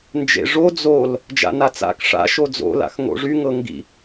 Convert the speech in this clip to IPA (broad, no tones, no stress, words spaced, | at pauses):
nd͡ʒḛʐo d͡zol | d͡ʒa̰nat͡sa̰k ʂa̰ ʃod͡zo̰ la̰xŋo̰ʐy ŋɤŋɡḭ